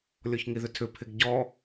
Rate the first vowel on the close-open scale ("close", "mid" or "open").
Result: mid